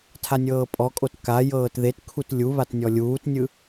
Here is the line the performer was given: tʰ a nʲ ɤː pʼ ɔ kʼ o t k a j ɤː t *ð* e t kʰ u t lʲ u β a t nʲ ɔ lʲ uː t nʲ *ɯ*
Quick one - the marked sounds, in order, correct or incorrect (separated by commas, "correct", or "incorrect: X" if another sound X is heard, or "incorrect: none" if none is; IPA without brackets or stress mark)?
correct, correct